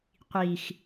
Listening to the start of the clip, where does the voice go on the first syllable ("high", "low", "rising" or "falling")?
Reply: low